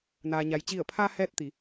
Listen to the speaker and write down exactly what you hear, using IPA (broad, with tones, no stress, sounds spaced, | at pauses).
n aː˩ ɲ a˩ j t͡ɕ i˧˩ ə̯ pʰ aː˧ h ɛː˥˨ t̚ t̪ i˩˧